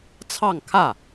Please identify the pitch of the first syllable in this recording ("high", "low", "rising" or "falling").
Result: falling